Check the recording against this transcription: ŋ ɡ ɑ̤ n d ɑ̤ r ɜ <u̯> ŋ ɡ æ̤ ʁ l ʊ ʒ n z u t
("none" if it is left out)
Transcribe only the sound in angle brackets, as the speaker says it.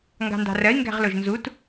i̯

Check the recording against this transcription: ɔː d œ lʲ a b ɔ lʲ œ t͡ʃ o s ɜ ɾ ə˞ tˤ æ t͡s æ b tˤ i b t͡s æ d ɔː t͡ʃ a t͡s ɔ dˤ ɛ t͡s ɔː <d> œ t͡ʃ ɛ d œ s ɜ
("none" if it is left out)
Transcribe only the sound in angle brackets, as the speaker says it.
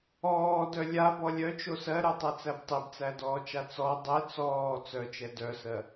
t͡s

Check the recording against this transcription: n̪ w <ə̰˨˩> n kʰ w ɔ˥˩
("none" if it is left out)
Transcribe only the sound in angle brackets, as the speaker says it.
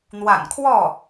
a̰˨˩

